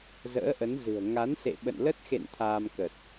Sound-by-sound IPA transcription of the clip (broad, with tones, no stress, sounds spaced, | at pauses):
z ə̰ː˧˥ ʔ ə˨˦ n z ɨ̤˨˩ ə̯ ŋ a˨˦ n s ḛ˧˨ ɓ ə̰˧˨ n l ə˦˥ t̚ x ḛ˧˨ n t̪ʰ aː˧ m k ə˨˩ t̚